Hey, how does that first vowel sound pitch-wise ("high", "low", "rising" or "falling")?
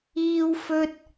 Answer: high